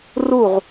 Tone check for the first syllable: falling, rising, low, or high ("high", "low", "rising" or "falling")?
falling